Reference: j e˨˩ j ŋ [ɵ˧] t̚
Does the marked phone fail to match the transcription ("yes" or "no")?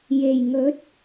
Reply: yes